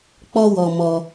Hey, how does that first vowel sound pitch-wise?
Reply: high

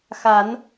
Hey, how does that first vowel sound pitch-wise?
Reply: rising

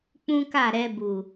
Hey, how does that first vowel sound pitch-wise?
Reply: high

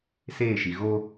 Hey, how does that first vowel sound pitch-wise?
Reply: falling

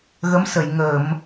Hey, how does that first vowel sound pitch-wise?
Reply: rising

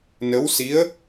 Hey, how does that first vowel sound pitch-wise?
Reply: rising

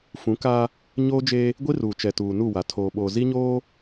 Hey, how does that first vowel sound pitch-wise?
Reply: rising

